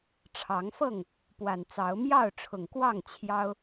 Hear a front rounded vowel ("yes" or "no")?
no